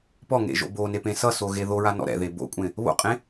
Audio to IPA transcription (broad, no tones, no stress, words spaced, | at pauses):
pɔŋḛʒo̰ bonepẽ sʌsoɣe ðoɹanɔ̰ ɾɛ̰ðe bo̰kʷʼẽ | βo̰qʼẽ